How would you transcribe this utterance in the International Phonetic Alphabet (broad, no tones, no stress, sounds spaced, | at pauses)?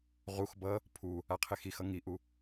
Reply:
ʁ u x b ʌ | pʰ u | a qʰ e x i x ʌ ŋ i ʔ u